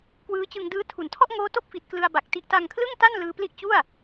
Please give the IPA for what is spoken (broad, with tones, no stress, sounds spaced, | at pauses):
k w ɯː˦˥ t͡ɕ ɯ˧ ŋ d ɯː˦˥ tʰ u˩˦ n tʰ ɔ˥˩ ʔ ŋ oː˦˥ t o˥˩ k̚ f i˨˩ t̚ k l ɯ˧ a̯ b a˨˩ k̚ t i˦˥ ʔ t a˧ ŋ kʰ l ɯ˥˩ ŋ t a˥˩ n l ɯː˧ p l i˥˩ ʔ t͡ɕ u˥˩ a̯